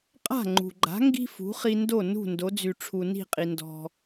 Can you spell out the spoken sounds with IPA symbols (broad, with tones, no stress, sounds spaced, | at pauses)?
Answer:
qʼ a̤˥˩ ŋ͡ǃ ṳ˩ ɡ͡ǃ a̤˩˥ ŋ ɡ i̤˥ f ṳ˩˥ χ i˧ n d o˥˩ n ṳ˥˩ n d o˩˥ d͡z y˩ ʈ͡ʂʰ u˩ n i̤˥˩ qʼ i˩ n d ɔ̤˩